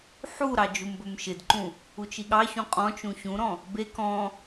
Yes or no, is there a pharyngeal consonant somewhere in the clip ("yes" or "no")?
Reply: yes